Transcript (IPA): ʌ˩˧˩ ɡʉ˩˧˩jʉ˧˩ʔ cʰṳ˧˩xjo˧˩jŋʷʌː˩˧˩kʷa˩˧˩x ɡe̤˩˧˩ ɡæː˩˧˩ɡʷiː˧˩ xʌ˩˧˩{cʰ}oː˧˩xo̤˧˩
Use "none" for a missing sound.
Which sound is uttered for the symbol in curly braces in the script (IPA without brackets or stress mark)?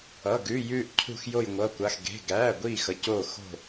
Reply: c